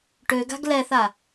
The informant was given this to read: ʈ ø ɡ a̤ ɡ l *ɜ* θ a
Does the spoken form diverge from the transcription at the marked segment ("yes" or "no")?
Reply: yes